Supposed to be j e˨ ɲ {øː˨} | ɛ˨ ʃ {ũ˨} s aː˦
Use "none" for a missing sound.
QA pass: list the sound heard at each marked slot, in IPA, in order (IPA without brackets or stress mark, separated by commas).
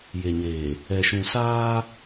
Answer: eː˨, ũ˨